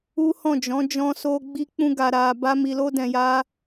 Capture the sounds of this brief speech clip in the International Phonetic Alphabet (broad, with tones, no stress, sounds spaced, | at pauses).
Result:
u˦ h ɔ̃˦˨ d͡ʒ ɔ̃˨˦ d͡ʒ ɔ̃˧ s o˧ ɡ͡b i˧ k͡p ũ˧ ɡ a˨ ɾ a˨ b a˧ m i˨ l o˧ d ɛ̃˨ j a˧